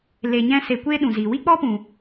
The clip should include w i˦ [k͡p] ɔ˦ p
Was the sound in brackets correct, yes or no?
yes